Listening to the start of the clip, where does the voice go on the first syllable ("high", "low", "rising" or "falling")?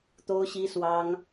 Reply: high